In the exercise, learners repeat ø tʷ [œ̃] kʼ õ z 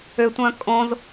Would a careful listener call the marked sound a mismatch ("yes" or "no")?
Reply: no